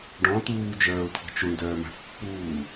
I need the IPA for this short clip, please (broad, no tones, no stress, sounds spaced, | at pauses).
ɖ ɔ̃ t̪ uː d͡ʒ œː ʊ̯ t̪ʰ ɔ̤ t͡ʃ u ɳ d œː m a̤ θ pː uː